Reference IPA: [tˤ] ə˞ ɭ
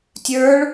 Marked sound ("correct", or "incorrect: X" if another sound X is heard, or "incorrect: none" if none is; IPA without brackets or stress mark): incorrect: tʲ